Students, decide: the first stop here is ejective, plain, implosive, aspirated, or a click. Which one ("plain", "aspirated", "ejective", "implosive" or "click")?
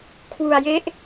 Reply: aspirated